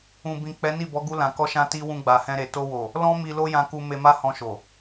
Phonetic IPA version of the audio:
ũ˨ b ĩ˨ k͡p ɛ˨˦ n i˦˨ b ɔ˨˦ ɡ u˧ l ã˨ k ɔ˧ ʃ ã˧ t i˦ w ũ˧ ɡ͡b a˨ h ɛ̃˧ ɾ e˨ t o˧ w o˨ | l ɔ̃˦ m i˧ l o˦ j ã˧ k u˧ m e˧ m a˦ h ɔ̃˧ ʃ o˨

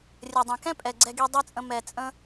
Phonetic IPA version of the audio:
rʲ ɘ˨ dˤ ɛ̃˨ k ɛ̃˦ pʼ ɛ˨ ɡ͡ǀ ɛ˧ ɡ i˧ dˤ ɛ˦ t͡sʼ ə̃˧ m ɛ˨ t͡sʼ ə̃˧

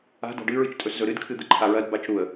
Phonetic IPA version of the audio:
a̤ d a̤ ɖ ɨ ɹ ɨ t͡ʃ tʼ ɵ s z ɵ ɾ ɨ d kʰ ɨ d̪ ɨ ǃʰ a ɹ ɐ d b a t͡ʃ ɾ u ə̯

